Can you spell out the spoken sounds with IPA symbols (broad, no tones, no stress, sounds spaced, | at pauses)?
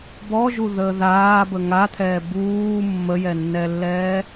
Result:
b ɔ ʒ u ð əː ð aː b ə ŋ a t̪ʰ ɛː b uː mː ə j ɛ nː ɛ lː ɛː